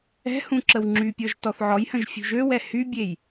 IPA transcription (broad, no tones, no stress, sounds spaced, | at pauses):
ɛ̤ h ũ ǁ ə w ŋ͡ǁ y pʲ ɔ ʒ t ɔ θ ʕ ɔ j h ə̃ ʒ fʲ ṳ ʒ ø w ɛ h y bʲ e j